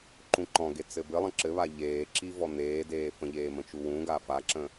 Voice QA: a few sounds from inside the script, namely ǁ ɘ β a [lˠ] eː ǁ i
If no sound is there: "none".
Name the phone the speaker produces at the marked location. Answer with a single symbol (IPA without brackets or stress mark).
ʎ